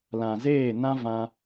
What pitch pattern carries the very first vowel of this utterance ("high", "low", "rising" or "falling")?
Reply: low